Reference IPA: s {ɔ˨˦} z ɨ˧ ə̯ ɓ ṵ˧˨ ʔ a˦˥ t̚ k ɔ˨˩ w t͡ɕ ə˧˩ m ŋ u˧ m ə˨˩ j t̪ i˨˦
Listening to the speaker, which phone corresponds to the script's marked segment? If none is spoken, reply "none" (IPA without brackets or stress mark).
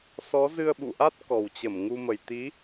ɔ˨˦